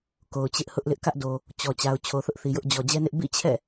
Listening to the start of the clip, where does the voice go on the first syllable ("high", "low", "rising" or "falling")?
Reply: low